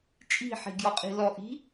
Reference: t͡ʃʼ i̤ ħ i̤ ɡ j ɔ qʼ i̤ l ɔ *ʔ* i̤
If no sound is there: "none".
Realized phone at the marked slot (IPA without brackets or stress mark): ʔ